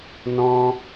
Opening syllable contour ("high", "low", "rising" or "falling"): high